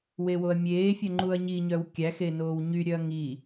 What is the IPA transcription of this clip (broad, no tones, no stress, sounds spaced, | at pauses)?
w e w o ɐ̯ mʲ eː fʲ œ ŋ͡ǃ u ɐ̯ ɲ i ɲ œ w kʲ æ x e n oː w ɲ y ɾʲ œ ɐ̯ ŋ i